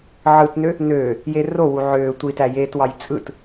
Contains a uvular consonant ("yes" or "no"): no